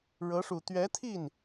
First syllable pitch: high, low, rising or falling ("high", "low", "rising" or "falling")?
rising